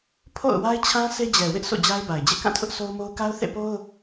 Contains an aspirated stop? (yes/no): yes